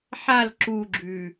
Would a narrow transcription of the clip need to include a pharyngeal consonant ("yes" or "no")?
yes